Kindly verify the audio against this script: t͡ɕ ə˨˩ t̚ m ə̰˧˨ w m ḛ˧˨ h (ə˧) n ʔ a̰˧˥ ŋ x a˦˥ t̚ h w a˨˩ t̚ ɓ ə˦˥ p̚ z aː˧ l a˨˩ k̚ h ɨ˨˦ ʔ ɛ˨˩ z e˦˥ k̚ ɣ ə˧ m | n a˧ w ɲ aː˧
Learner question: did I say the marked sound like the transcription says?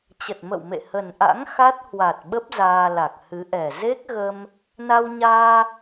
no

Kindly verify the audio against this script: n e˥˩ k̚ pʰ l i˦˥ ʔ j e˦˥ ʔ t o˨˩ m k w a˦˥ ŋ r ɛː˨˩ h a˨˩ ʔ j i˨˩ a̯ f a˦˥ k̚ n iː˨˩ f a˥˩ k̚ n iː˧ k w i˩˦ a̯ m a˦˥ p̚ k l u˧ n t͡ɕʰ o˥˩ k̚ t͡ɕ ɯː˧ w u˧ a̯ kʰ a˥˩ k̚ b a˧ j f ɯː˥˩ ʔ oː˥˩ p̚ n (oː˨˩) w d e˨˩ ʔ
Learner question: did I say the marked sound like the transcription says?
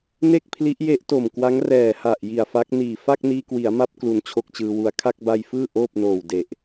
yes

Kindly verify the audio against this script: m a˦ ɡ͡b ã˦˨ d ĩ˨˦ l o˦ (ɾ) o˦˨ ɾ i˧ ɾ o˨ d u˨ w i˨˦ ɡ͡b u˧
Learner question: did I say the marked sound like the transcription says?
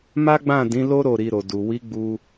yes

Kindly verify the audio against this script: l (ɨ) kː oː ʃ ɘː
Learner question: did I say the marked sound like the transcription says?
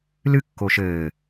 yes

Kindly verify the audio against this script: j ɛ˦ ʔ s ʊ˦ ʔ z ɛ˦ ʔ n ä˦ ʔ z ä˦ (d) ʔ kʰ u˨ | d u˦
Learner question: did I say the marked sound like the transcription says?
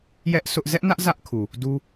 no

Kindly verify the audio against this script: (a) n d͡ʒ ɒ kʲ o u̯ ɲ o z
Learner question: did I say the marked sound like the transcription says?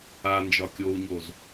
yes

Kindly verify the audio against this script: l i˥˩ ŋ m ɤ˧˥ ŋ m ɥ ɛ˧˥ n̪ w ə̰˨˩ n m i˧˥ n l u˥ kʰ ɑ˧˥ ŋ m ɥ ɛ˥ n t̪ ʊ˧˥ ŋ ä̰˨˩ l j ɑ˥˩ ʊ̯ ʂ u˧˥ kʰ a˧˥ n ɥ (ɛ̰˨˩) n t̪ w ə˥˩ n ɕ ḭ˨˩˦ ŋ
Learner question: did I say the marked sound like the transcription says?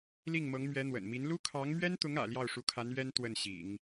no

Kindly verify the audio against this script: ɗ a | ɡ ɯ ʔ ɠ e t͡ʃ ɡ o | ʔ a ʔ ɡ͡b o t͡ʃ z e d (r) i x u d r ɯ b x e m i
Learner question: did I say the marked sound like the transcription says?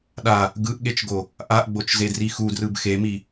yes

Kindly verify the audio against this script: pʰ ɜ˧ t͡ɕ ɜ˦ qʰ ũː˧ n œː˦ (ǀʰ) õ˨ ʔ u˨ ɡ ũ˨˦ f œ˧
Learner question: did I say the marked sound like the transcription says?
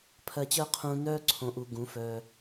yes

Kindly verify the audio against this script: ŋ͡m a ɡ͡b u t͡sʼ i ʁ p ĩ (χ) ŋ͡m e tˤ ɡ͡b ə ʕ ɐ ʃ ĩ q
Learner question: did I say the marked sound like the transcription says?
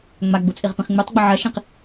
yes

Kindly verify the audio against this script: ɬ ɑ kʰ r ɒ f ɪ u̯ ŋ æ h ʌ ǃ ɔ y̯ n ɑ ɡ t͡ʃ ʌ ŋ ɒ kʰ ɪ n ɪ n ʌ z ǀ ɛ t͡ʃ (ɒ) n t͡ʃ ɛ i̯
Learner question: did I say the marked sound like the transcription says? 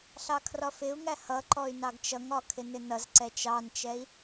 no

